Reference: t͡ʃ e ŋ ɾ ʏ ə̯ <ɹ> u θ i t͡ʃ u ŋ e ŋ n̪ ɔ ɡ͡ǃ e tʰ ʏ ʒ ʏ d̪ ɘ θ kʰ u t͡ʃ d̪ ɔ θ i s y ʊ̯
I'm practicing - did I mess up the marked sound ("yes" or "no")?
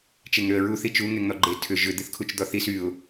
no